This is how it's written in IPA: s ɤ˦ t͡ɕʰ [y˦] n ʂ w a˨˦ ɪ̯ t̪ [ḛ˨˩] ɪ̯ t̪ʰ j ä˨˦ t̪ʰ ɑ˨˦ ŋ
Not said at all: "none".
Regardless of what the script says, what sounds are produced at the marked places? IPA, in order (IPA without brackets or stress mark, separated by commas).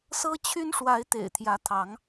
y˦, ḛ˨˩